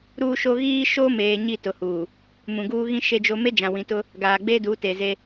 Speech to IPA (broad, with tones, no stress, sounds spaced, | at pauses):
ɾ uː˦ ʃ o˦ ɣ iː˦ ʃ o˦ m eː˨ ɲ i˦˨ t ʊ˨ h uː˨ | m ũ˨ ɡ uː˦ ɣ ĩ˦ ʃ e˦ d͡ʒ o˦ m e˦ d͡ʒ ã˨ w ĩ˨ t ʊ˦ | ɡ aː˨ ɡ͡b eː˦ d uː˨˦ t e˨ z e˦